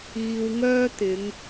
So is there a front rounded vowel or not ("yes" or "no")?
yes